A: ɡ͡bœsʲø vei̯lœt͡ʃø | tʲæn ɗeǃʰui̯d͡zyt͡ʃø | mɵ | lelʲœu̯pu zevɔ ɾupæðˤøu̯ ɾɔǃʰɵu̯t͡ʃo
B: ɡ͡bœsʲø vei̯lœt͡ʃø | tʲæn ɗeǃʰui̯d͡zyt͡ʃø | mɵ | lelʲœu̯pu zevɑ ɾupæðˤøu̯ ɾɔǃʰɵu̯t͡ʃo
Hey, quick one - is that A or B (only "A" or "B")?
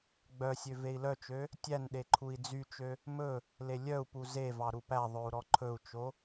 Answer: B